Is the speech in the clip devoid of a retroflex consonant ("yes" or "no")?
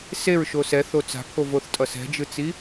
yes